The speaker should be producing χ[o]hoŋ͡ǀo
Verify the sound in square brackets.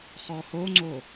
incorrect: ɔ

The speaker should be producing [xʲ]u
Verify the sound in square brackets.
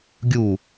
incorrect: ɡʲ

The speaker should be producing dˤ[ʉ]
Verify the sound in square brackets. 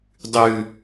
correct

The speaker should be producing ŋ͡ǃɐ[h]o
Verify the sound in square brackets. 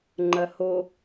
correct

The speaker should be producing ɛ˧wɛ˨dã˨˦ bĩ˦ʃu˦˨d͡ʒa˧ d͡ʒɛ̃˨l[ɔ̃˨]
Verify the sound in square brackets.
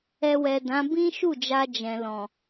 correct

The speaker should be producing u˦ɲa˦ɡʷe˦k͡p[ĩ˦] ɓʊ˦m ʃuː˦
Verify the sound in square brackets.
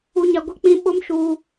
correct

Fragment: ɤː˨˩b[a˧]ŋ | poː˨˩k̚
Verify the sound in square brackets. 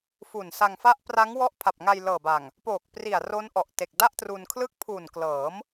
incorrect: a˨˩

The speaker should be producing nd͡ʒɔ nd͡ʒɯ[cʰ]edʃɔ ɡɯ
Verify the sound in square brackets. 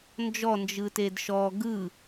incorrect: t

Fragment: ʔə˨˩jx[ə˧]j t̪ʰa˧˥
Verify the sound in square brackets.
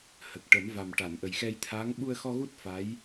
incorrect: ɛ˧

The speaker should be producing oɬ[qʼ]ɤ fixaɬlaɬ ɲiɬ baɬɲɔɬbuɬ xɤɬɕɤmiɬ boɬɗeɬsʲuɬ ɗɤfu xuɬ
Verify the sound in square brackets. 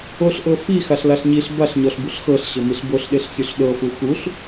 incorrect: ʔ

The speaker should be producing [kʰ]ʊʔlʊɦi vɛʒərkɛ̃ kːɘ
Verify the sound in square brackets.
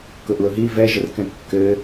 incorrect: k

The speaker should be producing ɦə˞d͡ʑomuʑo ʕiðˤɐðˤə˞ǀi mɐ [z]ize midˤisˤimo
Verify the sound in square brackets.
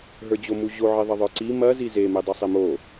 correct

